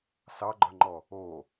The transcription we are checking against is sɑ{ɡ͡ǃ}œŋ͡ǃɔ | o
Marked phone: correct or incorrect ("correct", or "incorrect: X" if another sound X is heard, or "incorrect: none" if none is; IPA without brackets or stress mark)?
correct